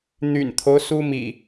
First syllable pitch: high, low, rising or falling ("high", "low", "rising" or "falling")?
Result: low